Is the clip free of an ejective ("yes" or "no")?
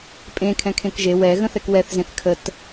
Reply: no